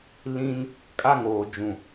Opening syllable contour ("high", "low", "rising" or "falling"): high